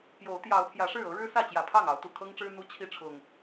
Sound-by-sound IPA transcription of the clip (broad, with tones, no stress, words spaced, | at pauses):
pjo˨˦ʊ̯ t̪jɑ˨˦ʊ̯pʰjä˨˦ʂɻ̩˥˨ ɤ˨˦ɻɻ̩˦sä˥˨t͡ɕjä˨˩ pʰɑ˥˨ŋ ɑ˨˦ʊ̯t̪u˨˩kʰɤ˦ŋʈ͡ʂɻ̩˦ n̪u˦t͡ɕʰi˥˨ʈ͡ʂʰʊ˨˩ŋ